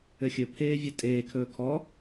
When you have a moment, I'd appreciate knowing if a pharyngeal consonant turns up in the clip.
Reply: no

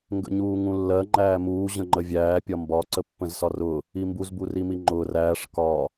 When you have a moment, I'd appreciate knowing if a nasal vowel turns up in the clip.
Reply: yes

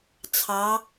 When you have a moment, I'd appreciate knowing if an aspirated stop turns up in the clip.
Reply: yes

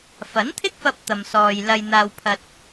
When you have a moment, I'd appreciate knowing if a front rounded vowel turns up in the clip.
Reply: no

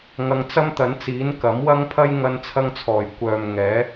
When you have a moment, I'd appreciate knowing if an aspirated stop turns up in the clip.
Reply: yes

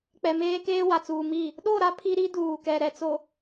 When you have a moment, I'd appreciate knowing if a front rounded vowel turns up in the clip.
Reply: no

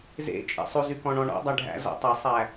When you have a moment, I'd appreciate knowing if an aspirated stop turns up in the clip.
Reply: no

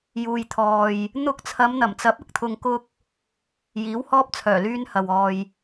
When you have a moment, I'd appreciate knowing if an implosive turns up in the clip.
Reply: no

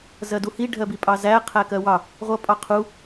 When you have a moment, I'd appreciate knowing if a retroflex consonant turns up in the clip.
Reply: yes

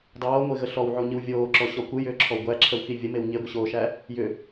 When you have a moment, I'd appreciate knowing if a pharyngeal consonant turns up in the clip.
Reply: yes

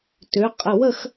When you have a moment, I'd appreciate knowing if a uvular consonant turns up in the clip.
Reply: yes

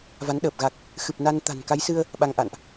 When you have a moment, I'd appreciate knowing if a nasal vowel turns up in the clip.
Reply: no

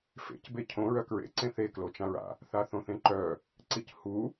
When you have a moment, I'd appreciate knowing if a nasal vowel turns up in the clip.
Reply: yes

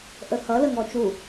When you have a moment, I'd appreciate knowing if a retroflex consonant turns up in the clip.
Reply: no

